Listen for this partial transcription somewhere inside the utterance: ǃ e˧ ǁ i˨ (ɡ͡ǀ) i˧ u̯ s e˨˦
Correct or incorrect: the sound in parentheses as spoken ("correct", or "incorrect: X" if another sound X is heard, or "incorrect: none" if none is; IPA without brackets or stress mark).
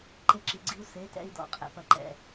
correct